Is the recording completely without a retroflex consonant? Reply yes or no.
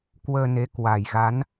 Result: yes